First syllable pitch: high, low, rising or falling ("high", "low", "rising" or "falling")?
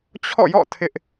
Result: falling